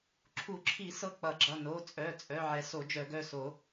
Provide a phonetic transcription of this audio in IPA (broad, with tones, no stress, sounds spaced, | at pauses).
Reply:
ǁʰ u˨˩˦ ǁʰ i˨˩˦ s ɤ˩˧˩ k͡p ʌ˨˩˦ ɡ͡ǁ ʌ˩˧˩ n o˩˧˩ t͡sʼ œ˩˧˩ t͡sʼ œ˩˧˩ ʕ ɛ˨˩˦ s o˨˩˦ d͡ʒ œ˨˩˦ ɡ œ˩˧˩ s o˨˩˦